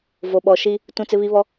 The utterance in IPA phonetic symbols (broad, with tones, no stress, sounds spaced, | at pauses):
v o˨ ɓ ɔ˨ ʃ i˦ | t ũ˦ t͡s ɪ˦ β i˦ β ɔ˦